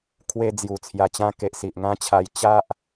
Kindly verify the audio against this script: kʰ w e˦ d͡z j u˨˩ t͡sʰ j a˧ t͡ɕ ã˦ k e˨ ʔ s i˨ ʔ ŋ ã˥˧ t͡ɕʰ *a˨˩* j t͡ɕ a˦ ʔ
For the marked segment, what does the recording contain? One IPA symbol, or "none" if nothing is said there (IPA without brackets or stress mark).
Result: a˧